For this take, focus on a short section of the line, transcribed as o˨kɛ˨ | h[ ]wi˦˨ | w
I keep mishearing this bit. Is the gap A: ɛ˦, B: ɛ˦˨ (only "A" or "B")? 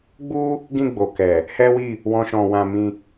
A